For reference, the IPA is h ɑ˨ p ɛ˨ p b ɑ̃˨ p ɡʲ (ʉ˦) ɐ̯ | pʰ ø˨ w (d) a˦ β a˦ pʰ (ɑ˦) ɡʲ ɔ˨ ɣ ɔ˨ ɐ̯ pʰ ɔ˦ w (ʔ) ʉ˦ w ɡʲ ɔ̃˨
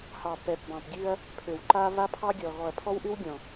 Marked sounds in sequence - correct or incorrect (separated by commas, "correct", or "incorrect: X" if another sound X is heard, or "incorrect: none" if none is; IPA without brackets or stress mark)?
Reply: correct, incorrect: ǃ, correct, correct